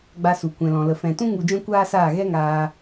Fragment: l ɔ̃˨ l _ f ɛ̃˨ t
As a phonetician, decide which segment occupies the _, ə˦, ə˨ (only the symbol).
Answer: ə˨